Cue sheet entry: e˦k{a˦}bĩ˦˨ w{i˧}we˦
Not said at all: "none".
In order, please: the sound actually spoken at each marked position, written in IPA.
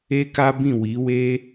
a˦, i˨˦

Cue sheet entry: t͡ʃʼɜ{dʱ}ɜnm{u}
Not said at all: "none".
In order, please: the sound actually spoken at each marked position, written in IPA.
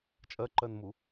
ǃ, u

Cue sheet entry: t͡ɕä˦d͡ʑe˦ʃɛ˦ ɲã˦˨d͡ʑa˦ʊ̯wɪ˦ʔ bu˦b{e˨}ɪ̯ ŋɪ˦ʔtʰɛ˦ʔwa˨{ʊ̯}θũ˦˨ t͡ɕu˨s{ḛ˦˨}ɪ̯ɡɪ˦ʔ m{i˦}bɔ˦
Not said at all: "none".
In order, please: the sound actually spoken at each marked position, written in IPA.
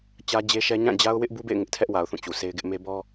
ḛ˦˨, ʊ̯, e˦, e˦

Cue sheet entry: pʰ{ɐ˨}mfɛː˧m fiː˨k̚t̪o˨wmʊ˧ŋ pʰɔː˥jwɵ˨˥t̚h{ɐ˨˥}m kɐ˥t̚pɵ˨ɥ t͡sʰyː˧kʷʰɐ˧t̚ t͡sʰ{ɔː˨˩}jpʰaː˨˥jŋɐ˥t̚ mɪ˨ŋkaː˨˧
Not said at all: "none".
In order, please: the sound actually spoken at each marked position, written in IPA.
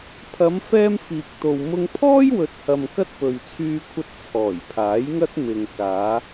ɐ˨˧, ɐ˨, ɔː˨˩

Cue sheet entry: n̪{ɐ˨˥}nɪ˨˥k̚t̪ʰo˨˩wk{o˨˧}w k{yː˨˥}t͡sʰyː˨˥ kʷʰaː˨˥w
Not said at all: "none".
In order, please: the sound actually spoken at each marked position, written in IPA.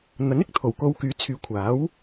ɐ˨˥, o˨˧, yː˨˥

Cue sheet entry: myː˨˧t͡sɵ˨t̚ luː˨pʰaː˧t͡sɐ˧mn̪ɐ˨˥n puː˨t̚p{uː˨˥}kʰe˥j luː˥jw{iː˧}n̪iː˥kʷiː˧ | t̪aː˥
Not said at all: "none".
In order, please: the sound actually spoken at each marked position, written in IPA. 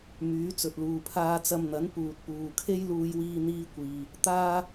uː˨, iː˥

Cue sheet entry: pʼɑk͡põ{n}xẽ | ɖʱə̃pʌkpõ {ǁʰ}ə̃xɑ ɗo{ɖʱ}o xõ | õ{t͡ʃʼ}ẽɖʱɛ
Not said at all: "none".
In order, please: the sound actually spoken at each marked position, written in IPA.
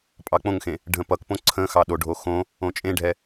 ŋ, ǀʰ, ɖʱ, t͡ʃʼ

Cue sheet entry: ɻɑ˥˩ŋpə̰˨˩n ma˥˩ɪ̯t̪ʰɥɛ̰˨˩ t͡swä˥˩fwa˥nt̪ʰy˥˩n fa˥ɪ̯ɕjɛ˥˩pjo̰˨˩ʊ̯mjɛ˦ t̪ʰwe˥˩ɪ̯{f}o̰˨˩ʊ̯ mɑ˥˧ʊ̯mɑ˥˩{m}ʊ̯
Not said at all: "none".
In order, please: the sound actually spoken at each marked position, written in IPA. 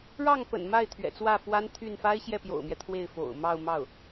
f, none

